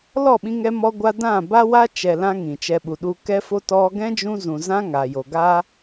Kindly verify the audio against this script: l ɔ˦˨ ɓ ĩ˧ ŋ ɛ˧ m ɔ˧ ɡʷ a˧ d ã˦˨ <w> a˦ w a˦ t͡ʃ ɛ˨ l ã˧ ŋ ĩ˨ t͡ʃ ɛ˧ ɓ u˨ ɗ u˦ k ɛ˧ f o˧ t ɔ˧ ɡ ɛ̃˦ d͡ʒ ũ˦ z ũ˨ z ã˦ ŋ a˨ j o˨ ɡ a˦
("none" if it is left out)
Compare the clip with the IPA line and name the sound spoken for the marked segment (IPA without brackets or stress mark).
b